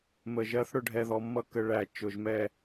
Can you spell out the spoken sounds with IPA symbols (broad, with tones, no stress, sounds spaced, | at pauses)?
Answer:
m ə˩˧˩ ʒ ɜ˧˥ θ ɽ ʊ˧ ɖʱ ɛ˧ ð ɔ˧ mː ʌ˥˩ k ə˧ ɭ æ˨˩˦ t͡ʃ ʊ˩˧˩ ʒ m ɛ˥˩